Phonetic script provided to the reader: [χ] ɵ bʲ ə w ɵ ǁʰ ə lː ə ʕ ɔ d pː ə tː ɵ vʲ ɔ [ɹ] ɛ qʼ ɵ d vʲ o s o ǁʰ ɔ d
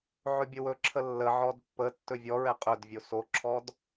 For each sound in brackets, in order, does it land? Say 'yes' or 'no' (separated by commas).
no, yes